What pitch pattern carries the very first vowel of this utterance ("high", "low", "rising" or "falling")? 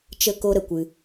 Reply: high